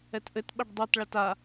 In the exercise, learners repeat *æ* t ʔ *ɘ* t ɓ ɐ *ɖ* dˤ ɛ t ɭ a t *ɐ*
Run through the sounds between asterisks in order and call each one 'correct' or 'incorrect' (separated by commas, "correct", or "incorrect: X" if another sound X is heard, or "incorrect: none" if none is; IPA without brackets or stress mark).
incorrect: ɛ, correct, correct, incorrect: a